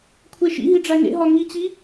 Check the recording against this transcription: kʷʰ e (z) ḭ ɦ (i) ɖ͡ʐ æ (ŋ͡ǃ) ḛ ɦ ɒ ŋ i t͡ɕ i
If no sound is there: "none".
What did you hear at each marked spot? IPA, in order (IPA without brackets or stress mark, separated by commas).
ʃ, i, ŋ